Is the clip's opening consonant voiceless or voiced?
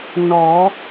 voiced